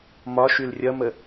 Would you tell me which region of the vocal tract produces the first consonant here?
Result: lips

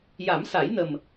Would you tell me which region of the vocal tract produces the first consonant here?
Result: palate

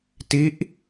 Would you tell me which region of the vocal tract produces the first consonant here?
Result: tongue tip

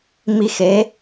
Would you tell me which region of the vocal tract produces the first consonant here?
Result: lips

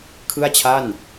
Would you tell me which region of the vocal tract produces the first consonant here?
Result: velum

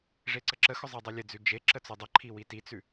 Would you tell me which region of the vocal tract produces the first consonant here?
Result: retroflex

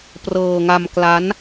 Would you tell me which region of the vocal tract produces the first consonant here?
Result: lips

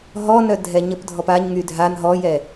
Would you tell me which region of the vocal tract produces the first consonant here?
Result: throat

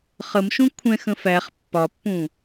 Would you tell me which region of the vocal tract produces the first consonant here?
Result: uvula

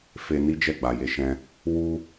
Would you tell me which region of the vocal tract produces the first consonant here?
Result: lips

